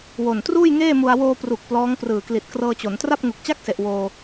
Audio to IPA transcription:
w o˨˩ n t r uː˥˩ j ŋ eː˥˩ m u˧ a̯ w oː˧ p r u˨˩ k̚ p l ɔː˦˥ ŋ p r ɯː˨˩ k l i˨˩ t̚ k r ɤː˧ t͡ɕ o˩˦ n t r a˥˩ p̚ ŋ u˨˩ k̚ t͡ɕ a˥˩ k̚ s e˨˩ ʔ w oː˧

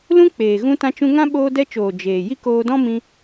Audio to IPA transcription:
l ũ˦ k͡p eː˨ ɣ ũ˧ t ã˧ t͡ʃ ũ˧ ŋ ã˦ ɓ oː˧ d ɛ˧ t͡ʃ oː˨ d͡ʒ eː˨ j i˦ k oː˧ d ɔ̃˦ m ĩ˧

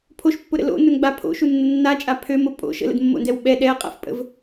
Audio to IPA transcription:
pʰ o ʃ pː ʊ ɾ ə̰ l o̰ n ʊ n ɡ͡b a pʰ o̰ ʃ u nː ə nː a t͡ʃʼ a pʰ ø m ʊ pʼ o̰ ʃ ə̰ l ə̰ d mː o̰ n d ɛ w ɓ ɛ ɗ ɛ ɐ̯ qʼ a̰ f pʼ ə̰ v

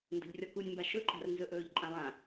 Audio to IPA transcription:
n d ə̤ ʎ rʲ ɔ k u nʲ m b a ʃ ɵ ǃʼ a̤ r n z ɵ ʔ ɵː ʎ ǃʼ ã lˠ ã

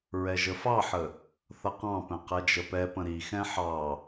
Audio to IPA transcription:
ɹ ɛ ʒ ə f ɑ ħ ə | θ ʌ q ɑ̃ p ɛ̃ q ɛ d͡ʒ ə p ɛ p ə̃ ɾ i x ɛ̃ ħ ɑ

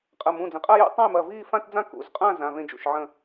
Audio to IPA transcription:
qʼ ɐ˩˧˩ m ũ˩˧˩ d͡z ə̃˩˧˩ qʼ a˥˧ j ṵ˥˧ tˤ ã˥˧ j m ɐ˩˧˩ v iː˥˧ f ã˥˧ t d͡z ã˥˧ k ṵ˩˧˩ z qʼ ã˥˧ z ã˩˧˩ v ẽ˥˧ d͡ʒ ṵ˩˧˩ ʃ ʕ ə̃˥˧

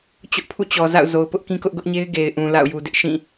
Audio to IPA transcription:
t͡ɕ ʊ˦ ʔ pʰ ṵ˦˨ t͡ɕ ɔ˨ z a̰˦˨ ʊ̯ z o˨ ʊ̯ p ʊ˦ ʔ k ĩ˦ k ʊ˦ ʔ ɡ ʊ˦ ʔ ɲ e˦ ɪ̯ ɡ e˨ ɪ̯ ʔ ũ˨ l a̰˦˨ ʊ̯ j u˨ d ɪ˦ ʔ ʃ ĩ˦˨

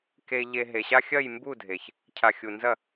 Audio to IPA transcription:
k e˨ ʎ e˨ ɦ e˨ ɕ a˦ xʲ ɐ˦˨ j m b u˦˨ dʱ e˨ ç | cʰ a˨ xʲ u˨ n z ɐ˦˨

